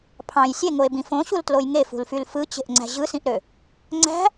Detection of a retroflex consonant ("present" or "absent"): absent